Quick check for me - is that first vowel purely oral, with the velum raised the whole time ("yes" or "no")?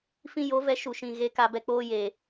no